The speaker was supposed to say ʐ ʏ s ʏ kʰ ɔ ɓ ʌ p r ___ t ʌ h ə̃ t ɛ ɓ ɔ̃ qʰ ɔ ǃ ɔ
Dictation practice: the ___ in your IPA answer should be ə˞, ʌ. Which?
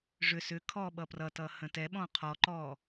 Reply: ʌ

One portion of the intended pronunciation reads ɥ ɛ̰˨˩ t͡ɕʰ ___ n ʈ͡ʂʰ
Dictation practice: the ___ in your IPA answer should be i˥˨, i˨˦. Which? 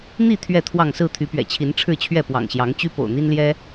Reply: i˨˦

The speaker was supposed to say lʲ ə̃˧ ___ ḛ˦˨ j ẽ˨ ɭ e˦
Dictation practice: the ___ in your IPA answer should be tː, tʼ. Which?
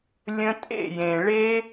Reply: tʼ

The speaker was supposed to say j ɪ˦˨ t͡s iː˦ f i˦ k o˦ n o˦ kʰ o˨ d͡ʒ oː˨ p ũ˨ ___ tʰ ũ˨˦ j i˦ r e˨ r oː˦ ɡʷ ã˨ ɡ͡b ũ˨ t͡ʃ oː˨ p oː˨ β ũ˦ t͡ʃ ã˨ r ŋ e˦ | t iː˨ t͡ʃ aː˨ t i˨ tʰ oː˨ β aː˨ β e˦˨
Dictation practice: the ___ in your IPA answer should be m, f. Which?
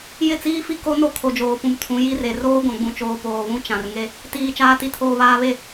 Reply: m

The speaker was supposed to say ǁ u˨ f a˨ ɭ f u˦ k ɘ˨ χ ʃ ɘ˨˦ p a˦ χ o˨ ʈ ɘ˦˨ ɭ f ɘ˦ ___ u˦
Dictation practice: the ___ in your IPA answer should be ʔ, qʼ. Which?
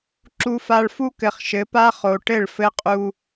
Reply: qʼ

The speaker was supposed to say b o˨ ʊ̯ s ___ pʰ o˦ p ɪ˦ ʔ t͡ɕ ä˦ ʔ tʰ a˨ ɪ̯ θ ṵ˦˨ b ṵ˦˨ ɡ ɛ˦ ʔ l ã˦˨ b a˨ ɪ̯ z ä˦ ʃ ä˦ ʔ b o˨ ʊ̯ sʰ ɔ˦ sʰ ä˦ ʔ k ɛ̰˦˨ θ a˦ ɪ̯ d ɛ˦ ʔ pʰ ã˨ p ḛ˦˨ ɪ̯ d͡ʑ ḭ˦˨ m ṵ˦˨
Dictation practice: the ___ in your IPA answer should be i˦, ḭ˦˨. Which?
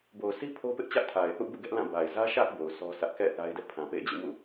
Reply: i˦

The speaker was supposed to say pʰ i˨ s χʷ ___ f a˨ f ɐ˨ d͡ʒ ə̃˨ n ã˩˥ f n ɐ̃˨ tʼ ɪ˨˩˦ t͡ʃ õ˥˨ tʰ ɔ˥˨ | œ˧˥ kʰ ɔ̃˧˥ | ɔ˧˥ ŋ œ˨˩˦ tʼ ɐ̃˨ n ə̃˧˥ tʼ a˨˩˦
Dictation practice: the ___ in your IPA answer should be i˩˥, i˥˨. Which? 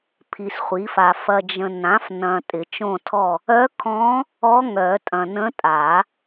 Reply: i˩˥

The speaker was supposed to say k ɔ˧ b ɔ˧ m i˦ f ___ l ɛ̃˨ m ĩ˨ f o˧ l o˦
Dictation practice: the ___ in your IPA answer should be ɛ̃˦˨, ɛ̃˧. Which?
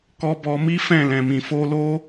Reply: ɛ̃˦˨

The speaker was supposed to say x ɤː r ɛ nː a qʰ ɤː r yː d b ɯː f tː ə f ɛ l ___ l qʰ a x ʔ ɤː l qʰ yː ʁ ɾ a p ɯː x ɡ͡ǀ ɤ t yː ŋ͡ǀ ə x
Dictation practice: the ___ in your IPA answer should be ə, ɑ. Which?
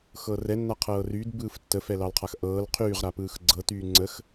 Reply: ɑ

